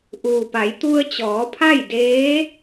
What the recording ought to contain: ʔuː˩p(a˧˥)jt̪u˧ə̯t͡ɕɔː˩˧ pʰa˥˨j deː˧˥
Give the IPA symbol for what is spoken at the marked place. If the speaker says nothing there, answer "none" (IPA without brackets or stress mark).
a˩˧